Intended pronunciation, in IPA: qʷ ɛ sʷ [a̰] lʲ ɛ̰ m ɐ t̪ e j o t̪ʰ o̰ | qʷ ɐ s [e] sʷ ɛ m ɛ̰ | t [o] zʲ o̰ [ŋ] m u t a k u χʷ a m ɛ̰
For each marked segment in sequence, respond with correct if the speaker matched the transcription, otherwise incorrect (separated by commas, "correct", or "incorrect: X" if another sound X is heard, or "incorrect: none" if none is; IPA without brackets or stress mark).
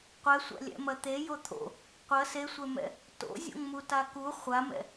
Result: correct, correct, incorrect: o̰, correct